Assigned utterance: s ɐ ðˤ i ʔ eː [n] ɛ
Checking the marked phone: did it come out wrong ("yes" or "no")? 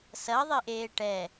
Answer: yes